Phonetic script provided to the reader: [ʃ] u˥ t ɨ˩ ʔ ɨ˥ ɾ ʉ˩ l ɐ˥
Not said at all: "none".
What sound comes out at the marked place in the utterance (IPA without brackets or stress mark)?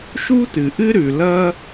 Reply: ʃ